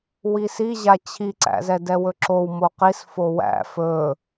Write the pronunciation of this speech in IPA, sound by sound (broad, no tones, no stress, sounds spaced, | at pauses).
w i s i ʑ a t͡ɕʰ i ǀ æ̰ z ɛ d ɛ w ɵ ǁ o w m o q i s f o w æ̰ f ɵ